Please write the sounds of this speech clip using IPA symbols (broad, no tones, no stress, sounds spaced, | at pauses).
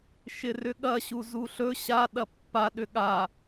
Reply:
ʃ ɪ r ʏ ɠ ɐ ɕ u z u ɬ ɵ ɕ a ɗ ɐ pː a ɗ ʏ ɠ a